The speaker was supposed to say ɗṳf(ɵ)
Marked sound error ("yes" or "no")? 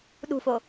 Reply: yes